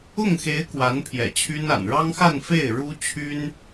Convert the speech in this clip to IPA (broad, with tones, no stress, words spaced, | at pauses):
ʊ˥˩ŋxe˧˥ɪ̯ kwa˧˥npʰjɛ̰˨˩t͡ɕʰy˥na̰˨˩n ɻɑ˥ŋxa˥˧nfe˥˩ɪ̯ ɻu˥ t͡ɕʰy˥n